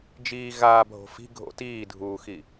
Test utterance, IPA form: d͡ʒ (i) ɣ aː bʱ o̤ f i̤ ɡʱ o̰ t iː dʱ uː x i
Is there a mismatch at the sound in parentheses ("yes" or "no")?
yes